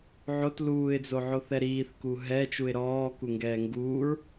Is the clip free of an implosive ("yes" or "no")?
yes